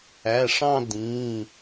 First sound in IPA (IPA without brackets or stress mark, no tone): æ